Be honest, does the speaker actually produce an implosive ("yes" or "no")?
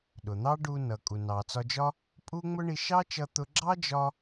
yes